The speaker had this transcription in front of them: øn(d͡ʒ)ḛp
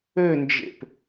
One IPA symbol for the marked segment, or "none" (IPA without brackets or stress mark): d͡ʒ